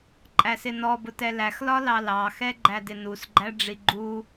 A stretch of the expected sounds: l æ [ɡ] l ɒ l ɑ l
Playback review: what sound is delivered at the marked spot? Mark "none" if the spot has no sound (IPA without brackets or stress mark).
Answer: x